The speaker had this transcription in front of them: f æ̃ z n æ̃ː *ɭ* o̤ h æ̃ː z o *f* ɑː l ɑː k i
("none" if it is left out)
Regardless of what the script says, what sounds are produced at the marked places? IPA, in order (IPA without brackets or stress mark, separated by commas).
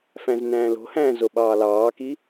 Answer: l, ɓ